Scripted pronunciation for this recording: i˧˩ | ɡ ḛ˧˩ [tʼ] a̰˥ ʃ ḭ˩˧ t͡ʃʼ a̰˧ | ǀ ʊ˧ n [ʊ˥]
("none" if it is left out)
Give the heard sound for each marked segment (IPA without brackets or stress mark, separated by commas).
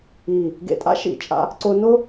tʼ, ʊ˥